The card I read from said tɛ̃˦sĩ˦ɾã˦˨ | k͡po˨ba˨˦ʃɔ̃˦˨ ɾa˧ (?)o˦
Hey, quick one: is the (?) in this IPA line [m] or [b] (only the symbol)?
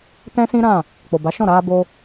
b